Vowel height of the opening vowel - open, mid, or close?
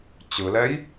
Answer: close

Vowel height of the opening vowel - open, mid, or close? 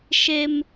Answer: mid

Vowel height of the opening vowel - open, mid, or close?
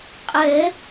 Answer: mid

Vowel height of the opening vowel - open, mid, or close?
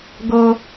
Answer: mid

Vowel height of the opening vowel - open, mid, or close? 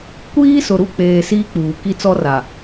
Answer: close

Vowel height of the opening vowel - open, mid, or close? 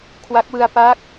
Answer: open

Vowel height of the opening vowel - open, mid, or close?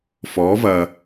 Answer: mid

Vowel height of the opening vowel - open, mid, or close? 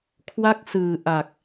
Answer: open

